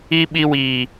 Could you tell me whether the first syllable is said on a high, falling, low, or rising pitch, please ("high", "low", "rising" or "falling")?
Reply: high